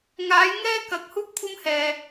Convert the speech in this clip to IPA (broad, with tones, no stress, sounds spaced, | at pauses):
ŋ aː˨˧ j ŋ ɛː˥ k ɐ˧ k̚ h uː˥ p̚ kʷʰ ɐ˥ m h ɛː˧